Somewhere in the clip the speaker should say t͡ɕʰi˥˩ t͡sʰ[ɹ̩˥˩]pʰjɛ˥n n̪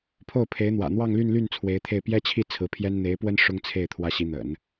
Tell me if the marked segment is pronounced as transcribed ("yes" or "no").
no